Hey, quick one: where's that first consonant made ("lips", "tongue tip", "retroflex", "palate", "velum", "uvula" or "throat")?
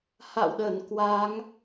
throat